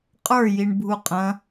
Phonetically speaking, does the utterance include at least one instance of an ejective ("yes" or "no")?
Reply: yes